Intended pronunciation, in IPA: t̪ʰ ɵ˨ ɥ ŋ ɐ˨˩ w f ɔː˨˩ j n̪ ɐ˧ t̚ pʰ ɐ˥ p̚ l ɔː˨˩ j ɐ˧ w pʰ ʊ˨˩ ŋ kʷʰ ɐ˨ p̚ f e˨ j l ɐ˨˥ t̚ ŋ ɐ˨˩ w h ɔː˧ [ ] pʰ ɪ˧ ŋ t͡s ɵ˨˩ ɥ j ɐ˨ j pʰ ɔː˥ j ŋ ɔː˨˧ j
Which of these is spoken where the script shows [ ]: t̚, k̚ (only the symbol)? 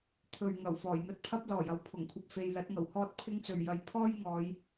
t̚